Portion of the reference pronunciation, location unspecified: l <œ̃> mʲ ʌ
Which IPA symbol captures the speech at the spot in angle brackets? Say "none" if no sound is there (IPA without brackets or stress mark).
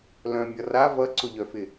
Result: œ̃